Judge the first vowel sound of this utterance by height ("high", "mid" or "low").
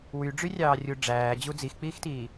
high